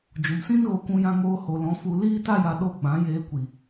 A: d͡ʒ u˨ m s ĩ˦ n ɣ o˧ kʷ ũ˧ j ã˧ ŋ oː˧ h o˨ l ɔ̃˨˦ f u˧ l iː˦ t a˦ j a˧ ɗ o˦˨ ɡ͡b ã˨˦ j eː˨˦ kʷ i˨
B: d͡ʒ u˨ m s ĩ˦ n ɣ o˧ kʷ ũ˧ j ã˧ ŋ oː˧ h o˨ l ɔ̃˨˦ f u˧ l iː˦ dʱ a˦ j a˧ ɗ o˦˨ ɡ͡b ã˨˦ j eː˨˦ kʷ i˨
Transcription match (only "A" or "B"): A